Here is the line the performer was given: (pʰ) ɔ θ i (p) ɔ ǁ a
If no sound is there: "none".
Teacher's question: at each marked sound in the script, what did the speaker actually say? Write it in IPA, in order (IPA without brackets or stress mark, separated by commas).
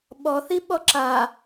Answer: ɓ, ɓ